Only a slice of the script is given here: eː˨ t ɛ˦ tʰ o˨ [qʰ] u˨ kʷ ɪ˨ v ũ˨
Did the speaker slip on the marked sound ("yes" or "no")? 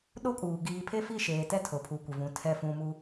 yes